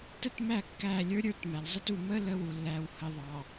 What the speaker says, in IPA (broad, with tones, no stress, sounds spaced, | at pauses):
t ə˦ t m æ˦˨ kː æ˦˨ lʲ ə˞˦ ɾʲ ə˞˦ t m æ˨ l zˤ ə˦ t u˨ m ə˦ l ə˦ w u˨ lː æ˨ w h ə˨ ðˤ ɑ˨